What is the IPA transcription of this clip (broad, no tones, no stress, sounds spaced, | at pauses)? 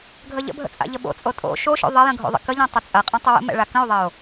ɡʱ ə ʎ ə̰ bʱ ə̰ t͡sʼ a̰ ʎ ə ɓ o̰ t͡sʼ o tʼ o̰ ʃ o ʃ o̰ ðˤ ɐ j ə̃ ɡʱ o̰ ðˤ ə̰ k ə ʎ ɛ̃ tˤ ɐ t͡sʼ ɐ qʼ ɐ̃ tˤ ə w ə̰ m ɛ̰ ɭ a k ə̃ o̯ ðˤ ɐ o̯